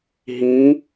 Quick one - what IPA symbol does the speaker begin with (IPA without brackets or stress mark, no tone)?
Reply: ɦ